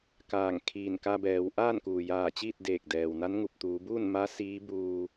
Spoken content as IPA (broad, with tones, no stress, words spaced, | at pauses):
kaː˧˩ŋkʰiː˧˩nka˧ bɛː˩˧w ʔaː˥˨nkuː˩jaː˧˩t͡ɕiː˥˨t̚ deː˧˩k̚dɛː˩wna˧˥n ŋu˧˩p̚t̪uː˩˧ buː˥˨nma˧˥ siː˧˥buː˧